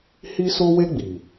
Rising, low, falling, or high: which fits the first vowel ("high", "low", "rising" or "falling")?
high